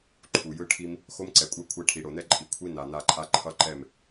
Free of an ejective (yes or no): no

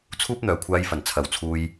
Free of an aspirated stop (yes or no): no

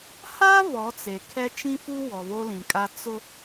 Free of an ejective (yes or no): no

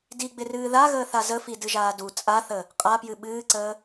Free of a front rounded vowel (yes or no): yes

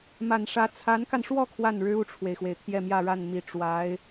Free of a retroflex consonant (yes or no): no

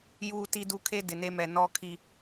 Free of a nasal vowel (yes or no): yes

